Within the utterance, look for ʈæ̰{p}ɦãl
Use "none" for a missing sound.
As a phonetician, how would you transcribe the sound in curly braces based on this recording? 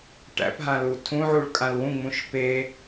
p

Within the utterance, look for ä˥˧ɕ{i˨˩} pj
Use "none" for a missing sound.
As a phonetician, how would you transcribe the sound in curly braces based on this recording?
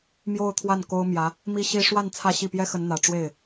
i˥˩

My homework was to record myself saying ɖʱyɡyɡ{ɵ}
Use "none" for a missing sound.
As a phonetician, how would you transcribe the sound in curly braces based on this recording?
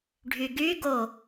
o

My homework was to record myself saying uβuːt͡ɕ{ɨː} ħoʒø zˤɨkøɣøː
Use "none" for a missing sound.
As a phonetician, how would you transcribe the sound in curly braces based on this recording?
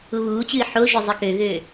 ɨː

